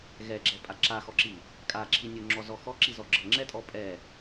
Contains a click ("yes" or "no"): yes